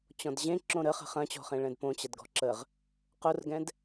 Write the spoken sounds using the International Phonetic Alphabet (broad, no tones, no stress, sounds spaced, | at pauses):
t͡ɕ ɔ̃ d ʑ ẽ ǁ õ ɾ ə χ ə̤ χ ɐ̃ t͡ɕ ɔ̤ χ ẽ ɭ ɛ̃ d p õ t͡ɕ ɐ d ɡ ɔ̤ ǁ ə ʁ | q o r ɡ ɛ̃ d